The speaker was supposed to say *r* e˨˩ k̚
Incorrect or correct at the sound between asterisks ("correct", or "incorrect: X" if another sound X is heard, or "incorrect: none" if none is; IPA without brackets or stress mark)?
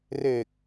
correct